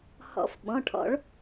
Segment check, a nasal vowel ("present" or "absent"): present